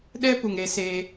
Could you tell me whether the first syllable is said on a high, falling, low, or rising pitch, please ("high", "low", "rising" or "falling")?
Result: high